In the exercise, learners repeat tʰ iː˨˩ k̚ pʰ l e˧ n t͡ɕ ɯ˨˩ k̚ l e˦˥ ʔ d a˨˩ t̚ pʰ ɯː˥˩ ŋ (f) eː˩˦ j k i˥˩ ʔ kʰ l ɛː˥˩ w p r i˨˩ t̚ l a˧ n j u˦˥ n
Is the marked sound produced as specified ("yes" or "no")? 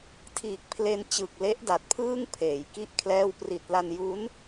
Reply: no